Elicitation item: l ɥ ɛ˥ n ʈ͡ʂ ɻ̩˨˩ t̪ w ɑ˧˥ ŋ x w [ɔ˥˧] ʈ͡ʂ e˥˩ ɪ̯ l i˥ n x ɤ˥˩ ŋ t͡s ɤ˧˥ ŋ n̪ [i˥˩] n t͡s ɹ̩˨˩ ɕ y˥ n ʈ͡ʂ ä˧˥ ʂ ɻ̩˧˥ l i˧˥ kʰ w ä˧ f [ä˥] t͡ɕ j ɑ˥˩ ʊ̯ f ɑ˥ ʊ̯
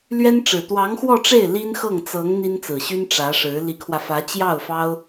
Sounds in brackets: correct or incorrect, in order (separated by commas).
correct, incorrect, incorrect